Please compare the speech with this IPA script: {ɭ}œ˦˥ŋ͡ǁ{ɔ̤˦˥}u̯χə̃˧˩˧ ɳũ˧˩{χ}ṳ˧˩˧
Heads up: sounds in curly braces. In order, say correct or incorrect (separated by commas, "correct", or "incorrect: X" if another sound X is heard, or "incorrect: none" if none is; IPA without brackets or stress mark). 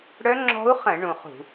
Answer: incorrect: ɽ, correct, correct